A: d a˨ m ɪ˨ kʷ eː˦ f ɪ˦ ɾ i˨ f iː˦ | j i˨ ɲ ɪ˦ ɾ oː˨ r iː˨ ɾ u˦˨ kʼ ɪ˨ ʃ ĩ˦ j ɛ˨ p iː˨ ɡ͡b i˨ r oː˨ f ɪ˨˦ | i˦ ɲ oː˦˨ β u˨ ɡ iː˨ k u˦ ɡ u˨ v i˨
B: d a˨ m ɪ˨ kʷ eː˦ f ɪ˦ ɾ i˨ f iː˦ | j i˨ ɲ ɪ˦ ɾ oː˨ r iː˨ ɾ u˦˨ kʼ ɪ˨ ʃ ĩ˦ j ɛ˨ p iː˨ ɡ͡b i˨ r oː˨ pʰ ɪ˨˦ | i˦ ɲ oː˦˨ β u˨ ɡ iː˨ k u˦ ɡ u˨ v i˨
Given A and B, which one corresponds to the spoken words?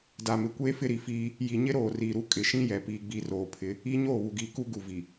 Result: B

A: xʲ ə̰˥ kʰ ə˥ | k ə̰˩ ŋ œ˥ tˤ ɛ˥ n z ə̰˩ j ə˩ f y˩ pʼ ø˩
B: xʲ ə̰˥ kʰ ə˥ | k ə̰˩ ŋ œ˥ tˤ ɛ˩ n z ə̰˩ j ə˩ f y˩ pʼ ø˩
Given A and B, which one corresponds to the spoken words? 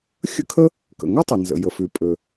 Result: B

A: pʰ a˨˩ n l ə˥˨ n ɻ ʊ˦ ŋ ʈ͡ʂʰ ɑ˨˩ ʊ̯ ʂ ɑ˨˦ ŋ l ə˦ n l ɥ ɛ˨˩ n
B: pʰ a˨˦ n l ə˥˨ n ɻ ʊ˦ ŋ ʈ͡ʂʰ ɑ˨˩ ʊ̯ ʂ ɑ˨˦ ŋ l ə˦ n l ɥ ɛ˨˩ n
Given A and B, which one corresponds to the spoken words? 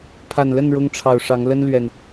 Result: A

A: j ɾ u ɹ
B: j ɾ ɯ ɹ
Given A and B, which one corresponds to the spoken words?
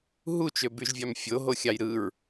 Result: B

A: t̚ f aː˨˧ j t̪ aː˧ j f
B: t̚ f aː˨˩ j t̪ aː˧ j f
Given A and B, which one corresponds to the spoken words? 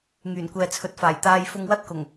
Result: B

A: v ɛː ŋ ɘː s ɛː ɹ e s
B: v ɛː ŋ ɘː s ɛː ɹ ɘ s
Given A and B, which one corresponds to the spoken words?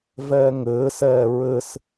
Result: B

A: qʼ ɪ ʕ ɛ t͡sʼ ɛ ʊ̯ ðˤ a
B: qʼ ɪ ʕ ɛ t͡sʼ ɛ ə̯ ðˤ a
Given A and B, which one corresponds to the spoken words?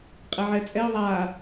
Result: A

